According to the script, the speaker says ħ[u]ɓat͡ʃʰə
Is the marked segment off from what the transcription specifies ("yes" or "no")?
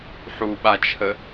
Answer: no